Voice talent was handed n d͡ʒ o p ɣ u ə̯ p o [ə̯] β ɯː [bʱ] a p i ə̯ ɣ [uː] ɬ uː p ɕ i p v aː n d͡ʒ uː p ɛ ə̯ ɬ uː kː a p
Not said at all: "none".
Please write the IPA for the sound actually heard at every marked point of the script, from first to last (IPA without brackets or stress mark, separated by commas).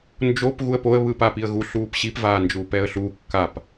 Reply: ə̯, p, u